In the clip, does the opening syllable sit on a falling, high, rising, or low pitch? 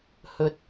rising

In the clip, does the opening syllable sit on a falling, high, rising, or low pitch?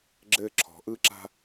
high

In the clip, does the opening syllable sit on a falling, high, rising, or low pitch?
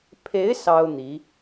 rising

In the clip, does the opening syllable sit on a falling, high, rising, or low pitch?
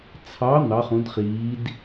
rising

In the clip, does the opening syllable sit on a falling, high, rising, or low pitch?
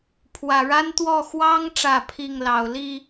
low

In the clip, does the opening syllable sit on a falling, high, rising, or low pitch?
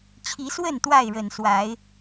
rising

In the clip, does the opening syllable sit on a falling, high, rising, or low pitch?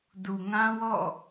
low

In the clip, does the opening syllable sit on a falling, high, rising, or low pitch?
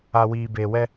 low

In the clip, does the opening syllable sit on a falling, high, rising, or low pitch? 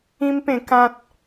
high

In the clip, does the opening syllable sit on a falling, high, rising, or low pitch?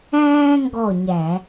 high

